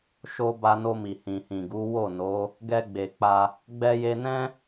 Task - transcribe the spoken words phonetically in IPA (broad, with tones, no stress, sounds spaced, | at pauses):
ʃ o˧ b a˧ n o˧ m i˨ h ĩ˨ h ĩ˨ ɡ u˨˦ w o˦˨ n o˨˦ | ɡ ɛ˧ ɡ͡b e˨ k͡p a˧ | ɡ͡b ɛ˧ j e˧ n ɛ̃˦